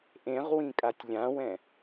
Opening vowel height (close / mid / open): mid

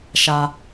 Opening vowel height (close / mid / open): open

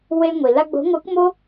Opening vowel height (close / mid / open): mid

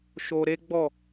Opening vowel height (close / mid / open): mid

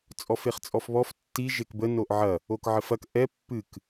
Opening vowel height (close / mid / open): mid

